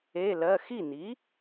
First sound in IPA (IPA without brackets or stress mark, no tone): e